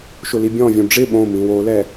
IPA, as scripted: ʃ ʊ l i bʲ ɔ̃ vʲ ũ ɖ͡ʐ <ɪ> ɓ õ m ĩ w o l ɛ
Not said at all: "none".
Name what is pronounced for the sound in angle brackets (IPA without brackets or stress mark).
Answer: ɪ